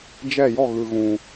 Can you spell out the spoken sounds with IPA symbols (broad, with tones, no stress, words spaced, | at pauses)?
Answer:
d͡ʒɛ˦˨jɔ˦˨ ɣɯ˨ɣũ˨